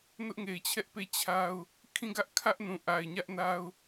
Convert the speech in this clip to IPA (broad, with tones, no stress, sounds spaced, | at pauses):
n ʊ˦ ʔ ŋ e˨ ɪ̯ t͡ɕʰ ɛ˦ ʔ p e˦˨ t͡ɕʰ a˦ ʊ̯ | kʰ ĩ˦˨ ɡ ä˦ ʔ kʰ ä˦ ʔ n ũ˨ ʔ a˨ ɪ̯ ɲ ä˦ ʔ n a˦ ʊ̯